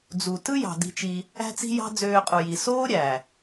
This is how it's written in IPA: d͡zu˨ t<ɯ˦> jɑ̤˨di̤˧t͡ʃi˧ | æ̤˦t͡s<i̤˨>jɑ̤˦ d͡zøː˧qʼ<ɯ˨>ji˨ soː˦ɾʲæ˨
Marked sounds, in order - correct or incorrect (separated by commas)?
correct, incorrect, incorrect